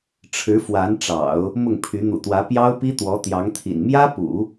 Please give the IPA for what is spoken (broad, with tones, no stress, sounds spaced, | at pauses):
ʈ͡ʂʰ ɻ̩˧˥ f w a˧˥ n ʈ͡ʂ ɑ̰˨˩˦ ʊ̯ | m ʊ˥˩ ŋ pʰ y˧˥ n̪ ṵ˨˩ t̪ w ä˧˥ p j ɑ˥ ʊ̯ p i˥ t̪ w ɔ˧˥ t̪ j ɑ˧˥ ŋ t̪ʰ ḭ˨˩ n m j ä˥ p ṵ˨˩˦